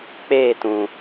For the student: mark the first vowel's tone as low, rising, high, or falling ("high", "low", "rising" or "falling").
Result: falling